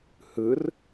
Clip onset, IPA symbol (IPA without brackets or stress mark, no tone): h